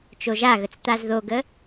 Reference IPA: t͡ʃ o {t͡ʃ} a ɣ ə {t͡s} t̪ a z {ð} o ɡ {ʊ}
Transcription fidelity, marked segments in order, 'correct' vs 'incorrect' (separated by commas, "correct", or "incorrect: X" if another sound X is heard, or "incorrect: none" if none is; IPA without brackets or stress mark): incorrect: ʒ, correct, correct, incorrect: ə